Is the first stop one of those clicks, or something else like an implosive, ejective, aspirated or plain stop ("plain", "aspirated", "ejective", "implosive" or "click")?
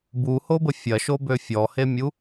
plain